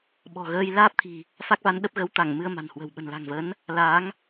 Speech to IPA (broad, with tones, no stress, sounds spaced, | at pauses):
ɓ ɔ̤˨˩ ɣ əː˧ j l aː˦˥ p̚ t̪ʰ i̤˨˩ | f a˦˥ k̚ v a˨˦ n ɗ ə˦˥ p̚ ɣ ə˨˦ w t̪ a˧˩ ŋ m ɨ˧ ə̯ m a̤˨˩ n h w ə̤˨˩ w ɓ ə̤˨˩ n l a̤˨˩ ŋ v ə˨˦ n | l a˨˦ ŋ